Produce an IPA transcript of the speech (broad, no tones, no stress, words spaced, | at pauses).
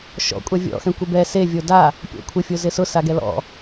ʃɔ̰kʷʼa vʲɔ̰xɛ̃kʷɪ bɛ sevʲo da | pʲɔ̰kʷʰɪ fʲozɪsʊ saɡɛlɔ̰